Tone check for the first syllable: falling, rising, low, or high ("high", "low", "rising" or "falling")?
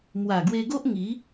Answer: low